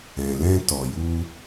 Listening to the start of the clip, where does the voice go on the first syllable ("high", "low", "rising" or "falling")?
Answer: low